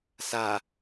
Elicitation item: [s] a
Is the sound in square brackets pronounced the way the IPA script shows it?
yes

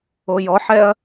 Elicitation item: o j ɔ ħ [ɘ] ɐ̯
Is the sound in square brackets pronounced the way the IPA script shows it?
no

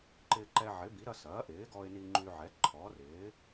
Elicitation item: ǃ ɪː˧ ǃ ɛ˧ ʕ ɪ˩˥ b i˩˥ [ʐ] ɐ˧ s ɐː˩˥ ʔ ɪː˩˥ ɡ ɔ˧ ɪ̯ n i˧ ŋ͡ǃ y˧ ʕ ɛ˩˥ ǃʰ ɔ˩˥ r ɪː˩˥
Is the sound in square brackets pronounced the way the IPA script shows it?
no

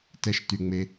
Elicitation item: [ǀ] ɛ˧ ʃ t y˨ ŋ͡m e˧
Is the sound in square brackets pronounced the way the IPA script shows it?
no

